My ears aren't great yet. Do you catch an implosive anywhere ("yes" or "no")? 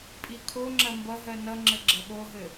yes